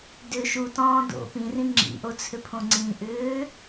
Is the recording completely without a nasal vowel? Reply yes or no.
no